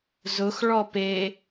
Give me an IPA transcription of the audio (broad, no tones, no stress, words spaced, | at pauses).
zʊx ɭɔpe